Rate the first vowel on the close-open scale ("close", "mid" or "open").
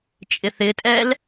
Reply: close